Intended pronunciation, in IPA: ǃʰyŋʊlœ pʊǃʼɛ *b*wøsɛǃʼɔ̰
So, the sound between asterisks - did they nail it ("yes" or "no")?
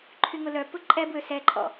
yes